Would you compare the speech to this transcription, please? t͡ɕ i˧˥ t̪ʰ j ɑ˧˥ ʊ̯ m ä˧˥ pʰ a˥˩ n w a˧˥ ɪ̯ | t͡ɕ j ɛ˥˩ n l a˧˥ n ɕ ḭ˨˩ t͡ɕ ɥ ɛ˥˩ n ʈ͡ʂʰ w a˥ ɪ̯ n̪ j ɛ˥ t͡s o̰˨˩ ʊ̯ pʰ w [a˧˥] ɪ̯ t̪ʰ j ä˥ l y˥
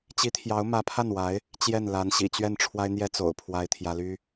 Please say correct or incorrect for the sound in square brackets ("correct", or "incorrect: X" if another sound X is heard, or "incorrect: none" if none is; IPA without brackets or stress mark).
incorrect: a˥